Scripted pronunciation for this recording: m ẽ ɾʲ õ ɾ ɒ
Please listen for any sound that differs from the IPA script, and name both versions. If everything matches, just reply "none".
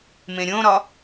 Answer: none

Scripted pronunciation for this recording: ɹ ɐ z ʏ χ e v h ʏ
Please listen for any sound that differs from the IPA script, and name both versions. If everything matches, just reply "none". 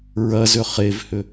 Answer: none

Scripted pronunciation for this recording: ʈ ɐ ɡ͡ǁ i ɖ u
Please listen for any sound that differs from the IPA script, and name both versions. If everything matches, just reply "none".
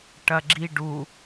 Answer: none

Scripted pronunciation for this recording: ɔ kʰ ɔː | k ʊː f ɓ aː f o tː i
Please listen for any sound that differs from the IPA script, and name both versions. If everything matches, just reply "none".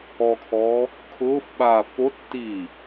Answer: k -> kʰ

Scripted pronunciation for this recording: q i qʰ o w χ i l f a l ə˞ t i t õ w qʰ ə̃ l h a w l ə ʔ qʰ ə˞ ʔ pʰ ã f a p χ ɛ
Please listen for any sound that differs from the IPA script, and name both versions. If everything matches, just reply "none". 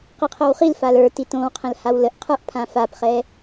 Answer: none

